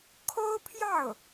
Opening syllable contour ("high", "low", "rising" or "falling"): high